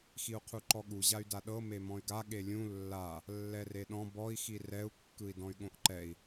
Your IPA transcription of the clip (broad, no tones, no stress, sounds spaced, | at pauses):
x i u̯ qʰ u ǃ ɔ ɠ u ʑ a y̯ d a ɗ ɤ m e m ɔ̃ y̯ ɡ a ɠ e lʲ ũ lː a | lː ɛ r e ɗ ɔ̃ b ɔ i̯ x i r ɛ u̯ kː ɯ i̯ d ɔ̃ y̯ ɠ õ ʔ ǃ ɛ i̯